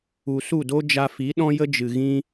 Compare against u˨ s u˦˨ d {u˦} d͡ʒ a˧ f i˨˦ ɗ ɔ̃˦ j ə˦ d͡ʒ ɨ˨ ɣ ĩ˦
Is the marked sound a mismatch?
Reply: yes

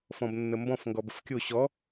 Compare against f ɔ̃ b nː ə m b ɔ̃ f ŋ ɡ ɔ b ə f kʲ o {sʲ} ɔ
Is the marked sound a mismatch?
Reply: yes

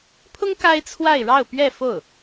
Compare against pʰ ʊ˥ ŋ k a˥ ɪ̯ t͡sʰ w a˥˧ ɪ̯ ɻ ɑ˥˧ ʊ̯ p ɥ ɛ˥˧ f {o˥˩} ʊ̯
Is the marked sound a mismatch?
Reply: no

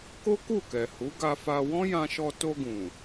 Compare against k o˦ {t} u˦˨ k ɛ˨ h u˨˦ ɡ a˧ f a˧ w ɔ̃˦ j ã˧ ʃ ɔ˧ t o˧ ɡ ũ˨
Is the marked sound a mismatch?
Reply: yes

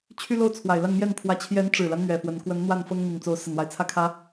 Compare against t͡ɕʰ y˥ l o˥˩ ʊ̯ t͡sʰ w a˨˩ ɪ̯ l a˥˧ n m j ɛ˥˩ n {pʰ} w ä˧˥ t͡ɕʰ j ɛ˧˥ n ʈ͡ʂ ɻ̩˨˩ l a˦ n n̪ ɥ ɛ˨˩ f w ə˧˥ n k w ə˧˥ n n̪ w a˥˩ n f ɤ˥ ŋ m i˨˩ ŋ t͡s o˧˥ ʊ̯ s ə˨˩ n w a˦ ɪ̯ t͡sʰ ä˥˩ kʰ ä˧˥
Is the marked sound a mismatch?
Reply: no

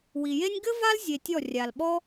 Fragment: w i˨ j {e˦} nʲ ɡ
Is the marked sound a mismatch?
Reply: no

